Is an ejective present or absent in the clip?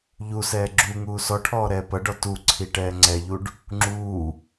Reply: absent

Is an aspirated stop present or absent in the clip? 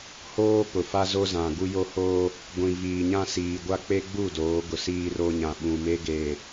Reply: absent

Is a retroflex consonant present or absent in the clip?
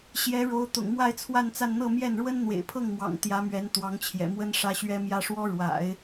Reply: present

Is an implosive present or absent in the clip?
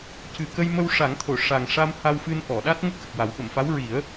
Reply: present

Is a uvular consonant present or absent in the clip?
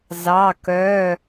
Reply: absent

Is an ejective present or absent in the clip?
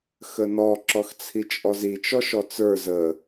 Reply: present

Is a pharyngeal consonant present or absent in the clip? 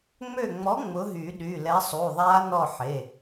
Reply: present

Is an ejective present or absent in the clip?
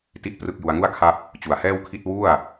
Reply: absent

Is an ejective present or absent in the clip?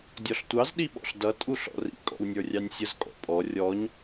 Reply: present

